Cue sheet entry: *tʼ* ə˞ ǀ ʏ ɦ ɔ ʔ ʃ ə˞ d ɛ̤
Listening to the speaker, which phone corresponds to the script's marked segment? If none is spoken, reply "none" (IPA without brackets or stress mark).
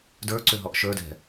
d